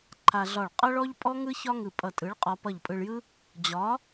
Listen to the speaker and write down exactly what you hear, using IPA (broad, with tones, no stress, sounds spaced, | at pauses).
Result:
ǃʰ a˧ ɮ ɒ˧˩ ɭ qʼ ʌ˥ ɭ ɔ˥ ʎ pʼ ɔ˥ ŋ ɯ˥ ç ɒ˥ ŋ ɯ˧˩ pʼ ʌ˧˩ tʼ ɯ˨˥ ɭ qʼ ɒ˧ p ʌ˧˩ ʎ pʼ ɯ˧ ɭ j ɯ˥ | d͡ʑ ɒ˨˥